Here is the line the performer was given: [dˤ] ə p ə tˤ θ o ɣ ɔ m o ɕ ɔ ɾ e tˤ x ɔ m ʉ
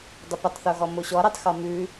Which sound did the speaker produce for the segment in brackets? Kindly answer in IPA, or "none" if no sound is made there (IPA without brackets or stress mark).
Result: dˤ